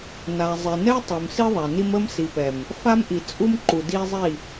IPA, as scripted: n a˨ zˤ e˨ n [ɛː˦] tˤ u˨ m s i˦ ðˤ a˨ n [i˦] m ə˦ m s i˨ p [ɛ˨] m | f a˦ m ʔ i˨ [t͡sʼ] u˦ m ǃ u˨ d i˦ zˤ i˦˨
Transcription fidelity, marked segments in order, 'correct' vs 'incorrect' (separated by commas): incorrect, correct, correct, correct